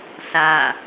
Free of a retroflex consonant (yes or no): yes